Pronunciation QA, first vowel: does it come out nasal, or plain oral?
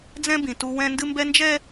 nasal